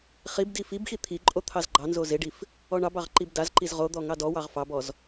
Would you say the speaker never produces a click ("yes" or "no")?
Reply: no